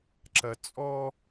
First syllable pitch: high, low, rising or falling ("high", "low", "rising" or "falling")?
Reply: low